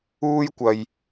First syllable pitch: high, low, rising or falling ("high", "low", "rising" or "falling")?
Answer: high